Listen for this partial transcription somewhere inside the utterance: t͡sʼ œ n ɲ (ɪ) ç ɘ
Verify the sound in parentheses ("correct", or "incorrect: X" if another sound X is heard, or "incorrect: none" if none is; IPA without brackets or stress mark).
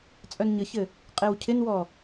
incorrect: ə